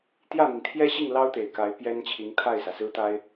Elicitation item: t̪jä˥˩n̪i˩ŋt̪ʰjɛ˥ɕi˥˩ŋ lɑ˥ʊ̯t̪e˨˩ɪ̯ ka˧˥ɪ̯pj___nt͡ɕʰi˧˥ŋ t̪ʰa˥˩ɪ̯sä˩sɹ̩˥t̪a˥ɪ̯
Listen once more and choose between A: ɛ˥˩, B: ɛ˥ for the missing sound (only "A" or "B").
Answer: B